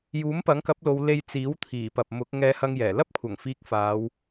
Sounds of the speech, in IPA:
j uː˨˥ m p ɐ˨˥ ŋ k ɐ˨˥ p̚ l o˨˧ w l e˧ j t͡s iː˨˥ w t̪ʰ iː˨˩ p ɐ˨ p̚ m ʊ˨˥ k̚ ŋ ɛː˧ h ɐ˧ ŋ j ɛː˨˩ l ɐ˥ p̚ kʷʰ ɐ˨˩ ŋ f iː˧ k̚ f aː˨˧ w

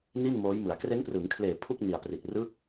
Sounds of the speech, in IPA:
n i˥˩ n m oː˦˥ j m ɯ˩˦ a̯ k r e˦˥ n p r ɯː˩˦ ŋ kʰ l eː˨˩ pʰ u˥˩ k̚ n i˨˩ a̯ p r i˨˩ t̚ r ɯ˦˥ k̚

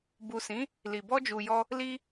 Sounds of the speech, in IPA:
b u˨ s ĩ˨˦ | l i˨ b ɔ˧ d͡ʒ u˨ j ɔ˧ | l i˧

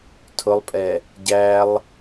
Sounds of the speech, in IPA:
tʰ ʊ lˠ pʼ ɛ | ɟ æ lˠ

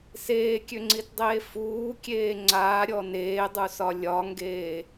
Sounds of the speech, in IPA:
s eː kʲ ø ŋ͡ǀ i t dˤ eː f uː kʲ eː ŋ͡ǀ aː ɾʲ ɔ n eː dˤ u s ɒ lʲ ɒ ŋ ɡ eː

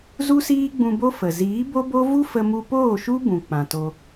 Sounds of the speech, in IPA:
z u˦ s iː˦ ɡ͡b ũ˧ b o˦ f ə˨ z iː˨˦ b o˦ b o˦ v u˦ f ə˧ m u˧ p oː˦˨ ʃ u˦ b ũ˨ k͡p ã˨ t o˧

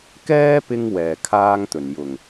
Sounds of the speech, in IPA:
k ɛː˥ p ɪ˧ ŋ w ɛː˨˩ kʰ aː˧ ŋ t̪ ɵ˨˩ n j ʊ˨˩ ŋ

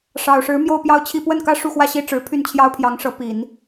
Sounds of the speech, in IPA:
ʂ ɑ˨˩ ʊ̯ ʂ ɻ̩˧˥ m j o˥˧ ʊ̯ p j ɑ˥˧ ʊ̯ t͡ɕʰ i˥˧ p w ə˥˩ n k ä˥ ʂ u˥˧ x w ä˥˧ ɕ i˥˩ ʈ͡ʂ ɻ̩˧˥ pʰ y˥˩ n t͡ɕʰ j ɑ˥ ʊ̯ pʰ j ɑ˧˥ ŋ ʂ ɤ˧˥ p i˨˩˦ n

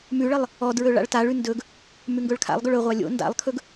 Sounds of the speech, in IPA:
m ʉ ɭ ə lˠ | ɔ d ɹ ɵ ɭ a̰ ɭ t a ɭ ʉ n d ɵ ɡ | m ʉ ŋ ɡ ɵ ɭ kʰ a̰ lˠ ɡ ɵ ɭ ɵ ʁʷ a lʲ o̰ n d a̰ lˠ kʰ ɵ ɡ

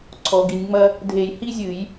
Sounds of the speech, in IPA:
ǀʰ ɔ˩˧ ɡ i˩˧ nʲ ŋ͡m ɐ˥ | dʱ e˧˩˧ j h i˥ zʲ ɨ˧˩˧ j

